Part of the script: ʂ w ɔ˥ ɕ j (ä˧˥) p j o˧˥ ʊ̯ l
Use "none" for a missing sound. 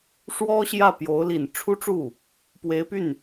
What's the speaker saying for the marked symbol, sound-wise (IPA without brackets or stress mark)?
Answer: ä˥˩